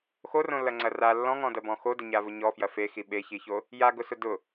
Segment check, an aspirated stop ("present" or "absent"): absent